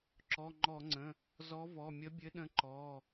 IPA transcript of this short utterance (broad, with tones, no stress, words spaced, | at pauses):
ǁɔ˩˧˩ŋ͡ǃɔ˧˩˧ŋ͡ǀə̃˩˧˩ | zɔ˨˥vɔ˩˧˩ mʲə˨˥bʲɘ˨˥ɗə̃˨˥ ǃɔ˩˧˩